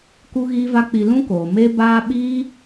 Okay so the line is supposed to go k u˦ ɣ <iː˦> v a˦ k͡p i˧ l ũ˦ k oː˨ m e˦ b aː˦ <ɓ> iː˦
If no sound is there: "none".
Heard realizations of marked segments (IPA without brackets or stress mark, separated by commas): iː˦, ɓ